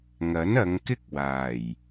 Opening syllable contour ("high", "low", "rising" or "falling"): rising